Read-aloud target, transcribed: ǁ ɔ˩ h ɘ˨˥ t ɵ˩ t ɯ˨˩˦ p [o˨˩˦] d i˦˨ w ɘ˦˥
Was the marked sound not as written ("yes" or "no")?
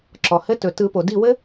yes